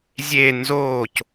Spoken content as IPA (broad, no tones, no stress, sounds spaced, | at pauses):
zʲ e n z oː c